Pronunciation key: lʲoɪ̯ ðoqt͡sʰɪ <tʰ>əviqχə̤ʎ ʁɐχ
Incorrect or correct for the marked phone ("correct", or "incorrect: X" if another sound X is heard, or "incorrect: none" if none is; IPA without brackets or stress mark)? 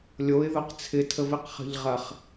correct